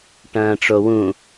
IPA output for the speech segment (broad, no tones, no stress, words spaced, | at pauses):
ʈɐ̃ːʈ͡ʂowũ